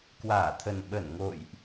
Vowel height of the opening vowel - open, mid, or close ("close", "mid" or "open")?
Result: open